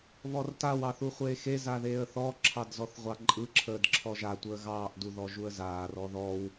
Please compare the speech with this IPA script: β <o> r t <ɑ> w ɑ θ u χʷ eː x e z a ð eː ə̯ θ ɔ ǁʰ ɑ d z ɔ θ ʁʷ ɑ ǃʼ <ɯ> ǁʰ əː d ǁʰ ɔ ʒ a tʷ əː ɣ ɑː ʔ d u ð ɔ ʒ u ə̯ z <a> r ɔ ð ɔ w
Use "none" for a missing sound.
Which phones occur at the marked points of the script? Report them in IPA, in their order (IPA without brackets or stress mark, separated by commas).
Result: ɔ, a, ɯ, aː